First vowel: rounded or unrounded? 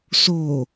rounded